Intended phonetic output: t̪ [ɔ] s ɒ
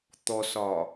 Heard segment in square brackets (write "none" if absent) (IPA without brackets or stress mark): ɔ